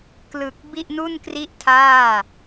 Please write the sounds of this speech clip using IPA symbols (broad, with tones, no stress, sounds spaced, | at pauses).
k l ɯ˨˩ k̚ b i˥˩ ʔ n u˥˩ n k r i˥˩ ʔ tʰ aː˥˩